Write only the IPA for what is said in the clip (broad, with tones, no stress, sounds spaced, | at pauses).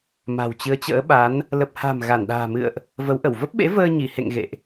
m a̤˨˩ w t͡ɕ ɨ˨˦ ə̯ t͡ɕ ə̰ː˧˥ ɓ a˨˦ n | l ə˨˩ p̚ h a̤˨˩ m ɣ a˧˩ n ɗ a̤ː˨˩ m ɨ̰˧˨ ə̯ ʔ | v ə˨˦ w ʔ ə˧˩ w v ə˦˥ p̚ ɓ ḛ˧˥ v əː˧ ɲ i˧˩ h ḛ˧˨ ŋ ɣ ḛ˧˨ ʔ